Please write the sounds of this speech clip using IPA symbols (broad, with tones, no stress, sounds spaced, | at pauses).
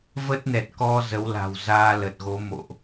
v ə˦˥ t̚ n ɛ˨˩ t̚ k ɔ˧ z ə˨˦ w l a̤˨˩ w z aː˧ l ə˨˩ t̚ ɣ o˨˦ m o̰˧˨ ʔ